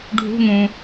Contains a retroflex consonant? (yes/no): yes